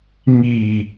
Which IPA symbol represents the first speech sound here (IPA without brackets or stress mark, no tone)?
ŋ